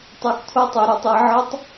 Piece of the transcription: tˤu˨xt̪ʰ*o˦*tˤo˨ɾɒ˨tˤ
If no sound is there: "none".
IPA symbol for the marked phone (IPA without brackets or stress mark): o˦